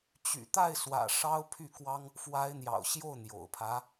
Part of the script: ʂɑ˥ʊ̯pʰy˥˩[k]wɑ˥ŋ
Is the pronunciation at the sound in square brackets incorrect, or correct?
correct